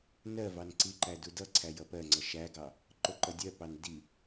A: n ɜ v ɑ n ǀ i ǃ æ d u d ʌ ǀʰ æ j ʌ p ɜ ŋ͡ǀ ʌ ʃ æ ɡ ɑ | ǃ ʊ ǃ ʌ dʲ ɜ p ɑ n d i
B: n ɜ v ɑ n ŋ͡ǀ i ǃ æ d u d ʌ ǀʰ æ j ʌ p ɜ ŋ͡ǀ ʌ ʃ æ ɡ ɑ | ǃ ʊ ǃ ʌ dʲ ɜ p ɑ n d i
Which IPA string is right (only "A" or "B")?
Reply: A